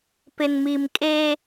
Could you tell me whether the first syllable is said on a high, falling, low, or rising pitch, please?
low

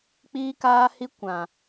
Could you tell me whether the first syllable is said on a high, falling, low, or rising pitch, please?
high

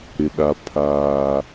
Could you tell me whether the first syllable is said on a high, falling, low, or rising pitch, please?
low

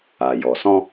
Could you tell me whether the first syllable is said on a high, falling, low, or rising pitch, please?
low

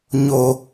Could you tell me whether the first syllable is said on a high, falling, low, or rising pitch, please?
low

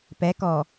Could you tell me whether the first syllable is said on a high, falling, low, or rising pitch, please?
rising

